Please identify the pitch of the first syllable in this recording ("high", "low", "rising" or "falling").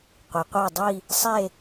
low